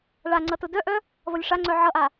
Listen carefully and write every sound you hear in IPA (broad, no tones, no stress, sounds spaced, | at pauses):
ɭ a ŋ͡ǀ ʌ t ʊ d œ ʔ œ | v ʌ lʲ ʂ a ŋ͡ǀ œ ʕ ʌ ʔ a